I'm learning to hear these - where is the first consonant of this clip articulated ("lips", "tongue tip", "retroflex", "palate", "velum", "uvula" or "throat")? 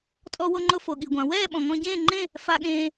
tongue tip